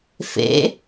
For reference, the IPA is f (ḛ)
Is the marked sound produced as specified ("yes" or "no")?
yes